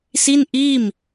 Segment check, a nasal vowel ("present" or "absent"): absent